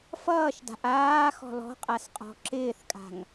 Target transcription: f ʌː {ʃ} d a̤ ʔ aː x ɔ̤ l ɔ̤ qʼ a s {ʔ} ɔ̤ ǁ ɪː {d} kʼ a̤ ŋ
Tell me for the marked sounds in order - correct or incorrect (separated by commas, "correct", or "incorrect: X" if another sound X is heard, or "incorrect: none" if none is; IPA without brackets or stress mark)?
correct, incorrect: qʼ, incorrect: θ